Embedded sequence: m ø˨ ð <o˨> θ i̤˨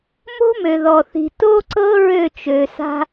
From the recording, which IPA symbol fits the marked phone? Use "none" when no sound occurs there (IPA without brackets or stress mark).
ɔ˨